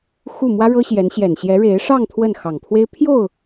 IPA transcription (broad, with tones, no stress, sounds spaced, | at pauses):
x u˥˩ m w ä˥ ɻ ɤ˥ ɕ j ɛ˧˥ n ɕ j ɛ˨˩ n ɕ j ɛ˧˥ ɻ e˧˥ ɪ̯ ʂ ɑ˥˧ ŋ t̪ʰ w ə˥˩ n x ɑ˨˩ ŋ pʰ w e˥ ɪ̯ pʰ j o˥˩ ʊ̯